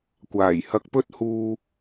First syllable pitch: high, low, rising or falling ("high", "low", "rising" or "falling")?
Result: low